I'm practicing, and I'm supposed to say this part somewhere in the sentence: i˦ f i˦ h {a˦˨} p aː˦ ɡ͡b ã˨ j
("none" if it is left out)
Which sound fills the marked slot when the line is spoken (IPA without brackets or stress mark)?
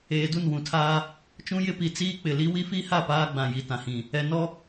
a˦˨